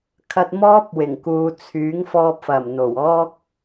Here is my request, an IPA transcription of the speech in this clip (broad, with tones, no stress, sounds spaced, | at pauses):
kʰ ɐ˧ t̚ m ɔː˥ p̚ w ɪ˨˩ ŋ k uː˨ t͡sʰ yː˨˥ ŋ f ɔː˧ p̚ f ɐ˨˩ m n̪ o˨˩ w ɔː˥ k̚